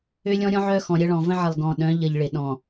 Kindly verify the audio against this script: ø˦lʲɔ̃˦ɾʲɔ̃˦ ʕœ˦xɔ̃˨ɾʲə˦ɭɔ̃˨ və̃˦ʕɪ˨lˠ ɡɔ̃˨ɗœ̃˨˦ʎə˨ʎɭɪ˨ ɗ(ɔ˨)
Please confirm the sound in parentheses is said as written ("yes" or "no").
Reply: no